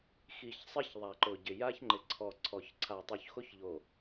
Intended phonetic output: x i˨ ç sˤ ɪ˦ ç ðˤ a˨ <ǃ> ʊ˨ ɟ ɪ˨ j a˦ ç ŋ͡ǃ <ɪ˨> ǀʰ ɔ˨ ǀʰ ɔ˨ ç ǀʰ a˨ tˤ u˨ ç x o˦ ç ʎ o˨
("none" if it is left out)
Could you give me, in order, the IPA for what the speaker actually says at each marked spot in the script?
ǃ, ɪ˨

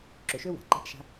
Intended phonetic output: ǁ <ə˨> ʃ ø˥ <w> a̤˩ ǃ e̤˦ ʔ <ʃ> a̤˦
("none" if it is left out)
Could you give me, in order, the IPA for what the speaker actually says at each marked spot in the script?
ø˨, w, ʃ

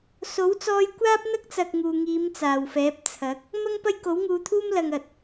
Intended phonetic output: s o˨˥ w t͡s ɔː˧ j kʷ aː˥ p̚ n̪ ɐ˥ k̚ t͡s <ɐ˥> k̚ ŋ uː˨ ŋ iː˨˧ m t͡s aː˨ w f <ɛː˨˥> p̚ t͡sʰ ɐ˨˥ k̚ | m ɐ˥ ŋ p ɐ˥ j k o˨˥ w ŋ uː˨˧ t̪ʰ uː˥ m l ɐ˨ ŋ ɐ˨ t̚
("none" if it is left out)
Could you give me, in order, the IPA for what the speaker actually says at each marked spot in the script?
ɐ˨, ɛː˨˥

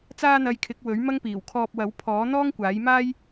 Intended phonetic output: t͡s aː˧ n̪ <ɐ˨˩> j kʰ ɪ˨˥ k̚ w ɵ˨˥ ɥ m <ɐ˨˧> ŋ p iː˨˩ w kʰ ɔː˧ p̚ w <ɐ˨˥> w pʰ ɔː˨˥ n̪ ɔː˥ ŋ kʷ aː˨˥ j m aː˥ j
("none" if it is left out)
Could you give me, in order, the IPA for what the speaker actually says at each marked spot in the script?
ɐ˨, ɐ˥, ɐ˨˥

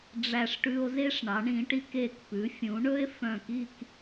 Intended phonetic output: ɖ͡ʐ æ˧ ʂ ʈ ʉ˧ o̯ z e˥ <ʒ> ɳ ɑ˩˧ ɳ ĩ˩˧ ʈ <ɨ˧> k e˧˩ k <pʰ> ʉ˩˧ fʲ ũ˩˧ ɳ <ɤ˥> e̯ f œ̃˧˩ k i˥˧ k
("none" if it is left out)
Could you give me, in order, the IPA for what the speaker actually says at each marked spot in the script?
ʂ, i˧, p, ɵ˥

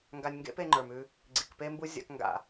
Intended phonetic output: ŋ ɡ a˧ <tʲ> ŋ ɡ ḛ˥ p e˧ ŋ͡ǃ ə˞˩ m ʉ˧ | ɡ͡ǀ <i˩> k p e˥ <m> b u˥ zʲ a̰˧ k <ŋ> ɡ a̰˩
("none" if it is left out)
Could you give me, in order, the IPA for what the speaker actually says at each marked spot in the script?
nʲ, i˩, m, ŋ

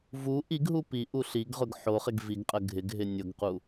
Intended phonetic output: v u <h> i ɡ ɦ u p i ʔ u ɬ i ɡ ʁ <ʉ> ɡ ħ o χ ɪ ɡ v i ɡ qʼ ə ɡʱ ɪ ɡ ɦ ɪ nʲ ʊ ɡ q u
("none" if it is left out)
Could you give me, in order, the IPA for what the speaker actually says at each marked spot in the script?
ʔ, ʊ

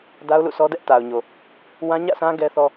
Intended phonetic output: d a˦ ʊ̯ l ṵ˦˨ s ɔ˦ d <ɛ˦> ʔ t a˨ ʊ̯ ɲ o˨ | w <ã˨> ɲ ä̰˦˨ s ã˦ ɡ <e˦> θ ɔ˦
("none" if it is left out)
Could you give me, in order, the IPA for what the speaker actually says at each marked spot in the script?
ɛ˦, ã˦, ɛ˦

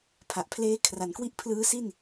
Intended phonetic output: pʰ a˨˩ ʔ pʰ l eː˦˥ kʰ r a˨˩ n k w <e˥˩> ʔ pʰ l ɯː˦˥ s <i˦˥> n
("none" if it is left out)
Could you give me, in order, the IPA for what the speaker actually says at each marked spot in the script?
i˥˩, i˥˩

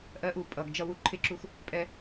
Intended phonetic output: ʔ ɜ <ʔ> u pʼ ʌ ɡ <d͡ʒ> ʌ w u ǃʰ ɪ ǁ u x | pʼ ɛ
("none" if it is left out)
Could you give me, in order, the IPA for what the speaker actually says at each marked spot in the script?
ʔ, d͡ʒ

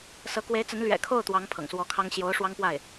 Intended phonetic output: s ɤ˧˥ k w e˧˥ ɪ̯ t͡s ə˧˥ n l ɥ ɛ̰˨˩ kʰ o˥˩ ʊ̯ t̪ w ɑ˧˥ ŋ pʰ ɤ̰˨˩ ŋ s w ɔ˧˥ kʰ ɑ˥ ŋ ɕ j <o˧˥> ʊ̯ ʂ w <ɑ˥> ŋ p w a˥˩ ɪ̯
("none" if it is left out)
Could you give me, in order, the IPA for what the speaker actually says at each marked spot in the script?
o˧˥, ɑ˥

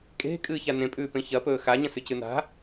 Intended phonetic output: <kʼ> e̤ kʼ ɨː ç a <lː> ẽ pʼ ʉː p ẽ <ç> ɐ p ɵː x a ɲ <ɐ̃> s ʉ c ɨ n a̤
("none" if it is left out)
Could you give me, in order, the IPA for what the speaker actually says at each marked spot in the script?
kʼ, n, ç, ɐ̃

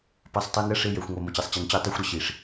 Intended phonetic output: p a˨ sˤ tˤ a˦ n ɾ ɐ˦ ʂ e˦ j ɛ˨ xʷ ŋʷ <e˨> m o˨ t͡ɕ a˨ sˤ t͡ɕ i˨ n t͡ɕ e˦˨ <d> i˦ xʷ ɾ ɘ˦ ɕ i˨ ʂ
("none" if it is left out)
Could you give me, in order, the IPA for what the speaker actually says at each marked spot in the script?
ɛ˨, tˤ

